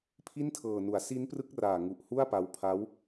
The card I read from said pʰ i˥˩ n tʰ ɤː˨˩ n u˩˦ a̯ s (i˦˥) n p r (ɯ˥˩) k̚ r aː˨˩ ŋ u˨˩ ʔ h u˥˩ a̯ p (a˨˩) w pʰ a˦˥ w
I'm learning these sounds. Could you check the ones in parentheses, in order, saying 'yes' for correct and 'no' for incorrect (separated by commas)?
yes, no, no